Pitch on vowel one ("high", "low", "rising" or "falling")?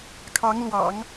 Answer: rising